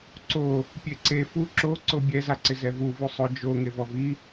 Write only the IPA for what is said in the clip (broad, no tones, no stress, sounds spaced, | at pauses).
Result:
ǀ o | pʲ e ǀ e f u ǁ o ǀ o bʲ ɛ z a ǀ ɪ z ɛ v u v u sˤ ʊ d͡ʒ o ŋ e v ɔ v i